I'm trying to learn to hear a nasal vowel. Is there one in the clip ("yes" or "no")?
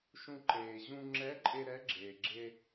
yes